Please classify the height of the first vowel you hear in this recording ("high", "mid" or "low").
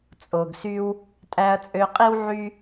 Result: mid